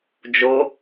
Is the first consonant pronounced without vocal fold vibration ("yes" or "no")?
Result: no